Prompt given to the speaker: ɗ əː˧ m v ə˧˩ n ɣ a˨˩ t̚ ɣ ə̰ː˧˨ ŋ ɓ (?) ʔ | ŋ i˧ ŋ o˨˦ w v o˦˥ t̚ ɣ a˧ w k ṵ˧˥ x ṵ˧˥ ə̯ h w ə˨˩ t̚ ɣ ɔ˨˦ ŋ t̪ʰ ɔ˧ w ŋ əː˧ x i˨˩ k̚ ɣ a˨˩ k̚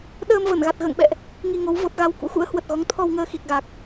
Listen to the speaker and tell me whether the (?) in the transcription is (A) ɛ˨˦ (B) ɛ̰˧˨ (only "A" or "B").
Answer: B